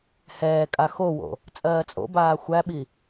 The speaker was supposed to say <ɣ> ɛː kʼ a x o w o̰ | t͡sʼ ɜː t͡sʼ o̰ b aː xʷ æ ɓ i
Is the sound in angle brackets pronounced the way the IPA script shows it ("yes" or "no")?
no